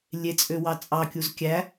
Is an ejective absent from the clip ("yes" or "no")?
no